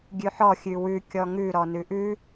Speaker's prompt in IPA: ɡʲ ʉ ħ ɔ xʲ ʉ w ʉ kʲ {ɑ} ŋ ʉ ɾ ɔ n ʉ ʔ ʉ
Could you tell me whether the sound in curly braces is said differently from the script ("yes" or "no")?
yes